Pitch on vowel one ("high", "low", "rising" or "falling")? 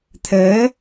rising